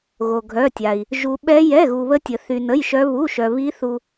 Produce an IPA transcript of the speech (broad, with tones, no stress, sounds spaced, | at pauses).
ɣ o˧ ɡʱ œ˧˥˧ tʲ a˧ i̯ | ʒ u˧ ɓ ɛ˦˥ j ɛ˧˥˧ ɣ u˧ β ə˦˥ tʲ ə˧ θ y˧ n ə˧˥˧ j ʃ œ˦˥ β u˧˥˧ ʃ œ˧ β i˦˥ θ u˧